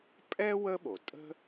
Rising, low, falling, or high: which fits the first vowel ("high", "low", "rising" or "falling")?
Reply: high